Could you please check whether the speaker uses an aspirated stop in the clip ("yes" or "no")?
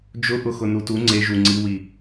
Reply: no